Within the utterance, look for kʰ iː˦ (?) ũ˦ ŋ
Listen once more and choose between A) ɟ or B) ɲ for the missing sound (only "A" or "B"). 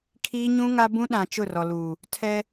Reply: B